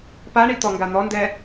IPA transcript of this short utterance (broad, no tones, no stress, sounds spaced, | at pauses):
p a ɳ i t̪ ɔ ŋ ɡ a n̪ ɔ n d ɛ